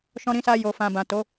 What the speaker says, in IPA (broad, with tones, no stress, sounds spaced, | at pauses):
ʃ ɔ̃˧ ɾ ĩ˧ s a˧ j o˨ f ã˨ b ã˨ t o˨˦